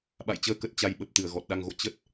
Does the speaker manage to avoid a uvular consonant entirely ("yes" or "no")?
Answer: yes